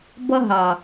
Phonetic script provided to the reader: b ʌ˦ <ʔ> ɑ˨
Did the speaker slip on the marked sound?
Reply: yes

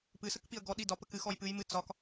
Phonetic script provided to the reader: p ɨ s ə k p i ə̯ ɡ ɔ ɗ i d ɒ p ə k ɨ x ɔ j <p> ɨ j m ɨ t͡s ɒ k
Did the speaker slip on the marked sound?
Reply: no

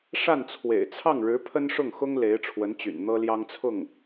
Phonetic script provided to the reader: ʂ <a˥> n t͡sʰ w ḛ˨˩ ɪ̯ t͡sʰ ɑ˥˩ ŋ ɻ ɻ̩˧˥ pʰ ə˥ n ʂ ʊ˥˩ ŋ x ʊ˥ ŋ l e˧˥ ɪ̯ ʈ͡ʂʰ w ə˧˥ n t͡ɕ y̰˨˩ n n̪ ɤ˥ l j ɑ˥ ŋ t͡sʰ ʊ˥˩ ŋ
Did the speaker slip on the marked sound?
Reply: yes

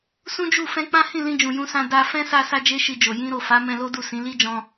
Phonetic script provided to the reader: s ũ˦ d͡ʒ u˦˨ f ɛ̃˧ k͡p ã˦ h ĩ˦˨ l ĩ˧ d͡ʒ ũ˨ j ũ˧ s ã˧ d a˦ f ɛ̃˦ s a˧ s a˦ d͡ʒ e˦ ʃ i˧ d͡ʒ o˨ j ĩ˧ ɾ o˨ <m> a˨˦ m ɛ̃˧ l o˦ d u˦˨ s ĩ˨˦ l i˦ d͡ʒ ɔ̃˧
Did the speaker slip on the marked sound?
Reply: yes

